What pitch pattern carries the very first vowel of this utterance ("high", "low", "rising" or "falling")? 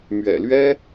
low